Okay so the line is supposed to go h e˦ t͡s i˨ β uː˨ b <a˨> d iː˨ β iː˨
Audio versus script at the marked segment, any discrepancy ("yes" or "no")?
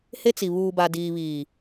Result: no